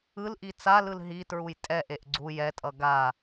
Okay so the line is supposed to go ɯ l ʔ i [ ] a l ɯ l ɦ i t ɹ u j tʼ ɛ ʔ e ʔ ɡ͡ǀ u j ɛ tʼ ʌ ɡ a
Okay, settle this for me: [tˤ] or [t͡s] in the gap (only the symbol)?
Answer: t͡s